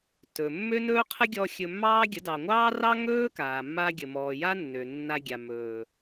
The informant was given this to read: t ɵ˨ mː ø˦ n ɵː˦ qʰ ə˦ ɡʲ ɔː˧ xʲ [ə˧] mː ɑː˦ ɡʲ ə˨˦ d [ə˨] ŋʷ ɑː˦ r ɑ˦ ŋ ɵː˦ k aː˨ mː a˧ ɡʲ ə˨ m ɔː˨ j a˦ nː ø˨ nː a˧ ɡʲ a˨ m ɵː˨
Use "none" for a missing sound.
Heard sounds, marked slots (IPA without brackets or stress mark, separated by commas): ɵ˧, ɑ˨